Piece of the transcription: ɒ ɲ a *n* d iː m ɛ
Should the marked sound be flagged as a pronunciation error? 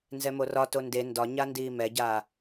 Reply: no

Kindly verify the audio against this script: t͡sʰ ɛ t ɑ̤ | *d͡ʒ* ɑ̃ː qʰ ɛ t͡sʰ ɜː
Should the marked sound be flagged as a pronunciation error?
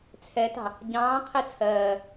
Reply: yes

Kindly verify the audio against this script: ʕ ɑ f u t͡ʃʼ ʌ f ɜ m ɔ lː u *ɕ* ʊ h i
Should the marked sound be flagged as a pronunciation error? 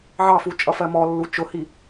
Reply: yes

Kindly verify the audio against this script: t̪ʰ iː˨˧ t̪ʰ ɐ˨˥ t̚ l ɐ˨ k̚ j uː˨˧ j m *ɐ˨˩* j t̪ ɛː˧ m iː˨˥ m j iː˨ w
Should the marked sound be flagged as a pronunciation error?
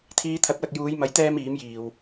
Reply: yes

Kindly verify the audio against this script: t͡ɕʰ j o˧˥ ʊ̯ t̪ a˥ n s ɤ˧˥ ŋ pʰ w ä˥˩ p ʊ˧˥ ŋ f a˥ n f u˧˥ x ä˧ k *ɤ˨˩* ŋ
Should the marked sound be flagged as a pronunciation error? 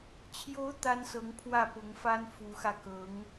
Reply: yes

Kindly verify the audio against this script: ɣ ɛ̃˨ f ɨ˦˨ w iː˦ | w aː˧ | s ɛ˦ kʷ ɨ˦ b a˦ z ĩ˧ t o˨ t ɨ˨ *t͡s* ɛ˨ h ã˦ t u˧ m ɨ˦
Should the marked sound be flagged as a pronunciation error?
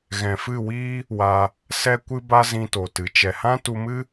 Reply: yes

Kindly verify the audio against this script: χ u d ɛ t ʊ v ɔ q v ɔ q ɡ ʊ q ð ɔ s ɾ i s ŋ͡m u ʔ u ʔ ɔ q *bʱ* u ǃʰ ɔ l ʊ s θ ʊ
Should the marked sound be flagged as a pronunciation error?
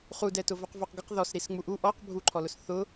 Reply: no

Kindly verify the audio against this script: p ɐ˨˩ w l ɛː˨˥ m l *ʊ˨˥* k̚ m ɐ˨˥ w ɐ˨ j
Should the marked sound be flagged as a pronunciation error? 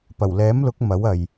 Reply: no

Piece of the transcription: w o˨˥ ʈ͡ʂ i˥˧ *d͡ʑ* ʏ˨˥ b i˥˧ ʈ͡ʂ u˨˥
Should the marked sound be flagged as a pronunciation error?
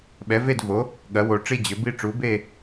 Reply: no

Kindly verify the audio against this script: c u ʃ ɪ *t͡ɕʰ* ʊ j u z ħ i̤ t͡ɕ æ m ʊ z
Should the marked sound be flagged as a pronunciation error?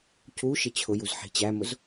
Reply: no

